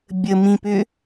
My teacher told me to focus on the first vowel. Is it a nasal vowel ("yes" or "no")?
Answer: no